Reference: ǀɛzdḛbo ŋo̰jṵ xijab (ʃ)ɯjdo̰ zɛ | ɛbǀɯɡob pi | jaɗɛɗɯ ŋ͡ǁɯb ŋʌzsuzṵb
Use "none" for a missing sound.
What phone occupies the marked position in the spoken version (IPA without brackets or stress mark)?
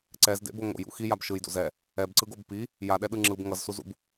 ʃ